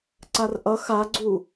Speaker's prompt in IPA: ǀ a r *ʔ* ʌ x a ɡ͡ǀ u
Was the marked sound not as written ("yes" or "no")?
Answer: no